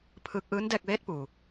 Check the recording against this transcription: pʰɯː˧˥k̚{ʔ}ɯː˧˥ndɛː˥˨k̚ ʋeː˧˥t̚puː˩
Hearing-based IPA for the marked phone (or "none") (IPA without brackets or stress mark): ʔ